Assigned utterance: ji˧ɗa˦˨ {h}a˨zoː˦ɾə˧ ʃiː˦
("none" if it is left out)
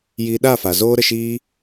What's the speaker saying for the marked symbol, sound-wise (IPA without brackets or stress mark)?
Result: f